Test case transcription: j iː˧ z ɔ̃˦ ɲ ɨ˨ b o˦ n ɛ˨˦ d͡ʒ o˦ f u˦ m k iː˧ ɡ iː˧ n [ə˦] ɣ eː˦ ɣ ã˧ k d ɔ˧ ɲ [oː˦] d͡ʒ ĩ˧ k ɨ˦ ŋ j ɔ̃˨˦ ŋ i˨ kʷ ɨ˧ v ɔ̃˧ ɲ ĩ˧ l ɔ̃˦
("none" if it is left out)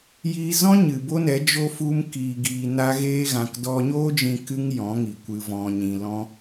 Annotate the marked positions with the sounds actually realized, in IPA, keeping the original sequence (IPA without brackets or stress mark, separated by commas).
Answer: a˦, oː˦